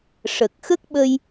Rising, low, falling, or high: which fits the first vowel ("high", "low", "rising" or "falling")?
low